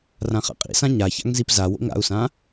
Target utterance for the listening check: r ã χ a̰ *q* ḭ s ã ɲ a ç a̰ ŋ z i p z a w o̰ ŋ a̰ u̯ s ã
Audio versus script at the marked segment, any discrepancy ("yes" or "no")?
yes